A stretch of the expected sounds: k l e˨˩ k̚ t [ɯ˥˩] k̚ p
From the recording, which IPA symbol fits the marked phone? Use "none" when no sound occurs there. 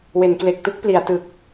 u˥˩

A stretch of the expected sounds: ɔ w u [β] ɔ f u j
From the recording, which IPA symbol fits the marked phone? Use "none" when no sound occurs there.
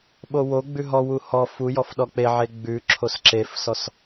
h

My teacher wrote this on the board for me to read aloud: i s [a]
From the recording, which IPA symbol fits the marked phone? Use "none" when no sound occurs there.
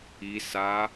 a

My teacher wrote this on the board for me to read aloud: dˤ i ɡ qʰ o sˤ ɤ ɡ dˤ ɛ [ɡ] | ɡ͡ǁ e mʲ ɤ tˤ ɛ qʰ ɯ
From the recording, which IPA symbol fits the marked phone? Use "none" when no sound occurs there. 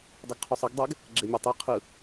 ɡ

